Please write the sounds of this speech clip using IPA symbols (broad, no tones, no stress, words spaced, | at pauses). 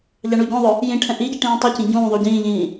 ʎɑɳuɟɔ̃ðˤʊ | jĩʈʰɛ̃ ʔiɟi ʈĩːtˤʌcĩ ɟũːðˤu ɟĩːʎĩː